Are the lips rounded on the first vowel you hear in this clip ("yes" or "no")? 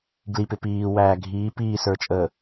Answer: no